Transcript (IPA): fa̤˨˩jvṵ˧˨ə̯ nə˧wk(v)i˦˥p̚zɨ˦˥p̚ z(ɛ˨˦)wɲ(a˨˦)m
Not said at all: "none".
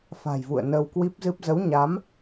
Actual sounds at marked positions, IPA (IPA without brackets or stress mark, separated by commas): w, ə˨˦, a˨˦